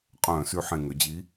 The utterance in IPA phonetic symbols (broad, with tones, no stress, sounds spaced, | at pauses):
qʼ œ̃ː˧˩˧ s y˧˩˧ ħ ẽ˨˩ ŋ ø˩˧ d͡ʑ i˨˥